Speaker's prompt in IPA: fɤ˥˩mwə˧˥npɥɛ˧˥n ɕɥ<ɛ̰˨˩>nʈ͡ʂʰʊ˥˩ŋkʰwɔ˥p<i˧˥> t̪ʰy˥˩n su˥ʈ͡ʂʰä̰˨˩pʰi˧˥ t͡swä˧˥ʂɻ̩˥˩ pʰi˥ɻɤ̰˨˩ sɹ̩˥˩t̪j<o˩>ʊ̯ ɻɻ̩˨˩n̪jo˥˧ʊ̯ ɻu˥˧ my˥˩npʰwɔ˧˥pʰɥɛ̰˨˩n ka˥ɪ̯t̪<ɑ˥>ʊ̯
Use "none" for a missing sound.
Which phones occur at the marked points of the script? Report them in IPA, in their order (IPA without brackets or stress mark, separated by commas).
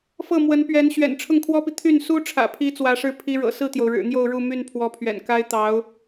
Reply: ɛ̰˨˩, i˨, o˩, ɑ˧˥